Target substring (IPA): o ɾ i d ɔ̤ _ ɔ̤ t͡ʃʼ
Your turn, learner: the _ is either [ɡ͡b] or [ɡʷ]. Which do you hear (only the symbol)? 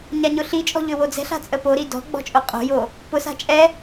ɡ͡b